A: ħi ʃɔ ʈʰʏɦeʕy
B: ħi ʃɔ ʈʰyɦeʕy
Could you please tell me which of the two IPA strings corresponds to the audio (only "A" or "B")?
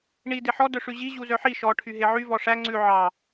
B